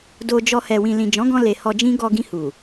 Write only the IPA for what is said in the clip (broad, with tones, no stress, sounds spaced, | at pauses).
d o˧ d͡ʒ ɔ˧ h ɛ˨ w ĩ˨ l ĩ˨ d͡ʒ ɔ̃˨˦ ɡ ɔ̃˧ l e˨ h ɔ˧ d͡ʒ ĩ˦ ɡ ɔ˧ ɡ ĩ˧ h u˨